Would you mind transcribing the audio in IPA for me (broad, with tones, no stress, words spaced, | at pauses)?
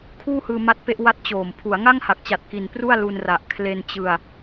kʰuː˥˩hɯː˧ ma˦˥t̚pe˦˥ʔwa˦˥t̚ t͡ɕoː˨˩m pʰu˩˦a̯ŋa˥˩ŋha˨˩k̚t͡ɕa˨˩t̚ ki˧n pru˥˩a̯lu˧nra˨˩ʔ kʰle˧nt͡ɕɯ˧a̯